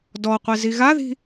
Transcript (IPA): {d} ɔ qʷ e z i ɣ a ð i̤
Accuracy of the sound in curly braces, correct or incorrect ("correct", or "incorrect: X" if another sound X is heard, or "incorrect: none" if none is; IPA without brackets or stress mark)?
correct